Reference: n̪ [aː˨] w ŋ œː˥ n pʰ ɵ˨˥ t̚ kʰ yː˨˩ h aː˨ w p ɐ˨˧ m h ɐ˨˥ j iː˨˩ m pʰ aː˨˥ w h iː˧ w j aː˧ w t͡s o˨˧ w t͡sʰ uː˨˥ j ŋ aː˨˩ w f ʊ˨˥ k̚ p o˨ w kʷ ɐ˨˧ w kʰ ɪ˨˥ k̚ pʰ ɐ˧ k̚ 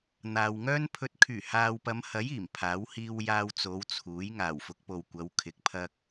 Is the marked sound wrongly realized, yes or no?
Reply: no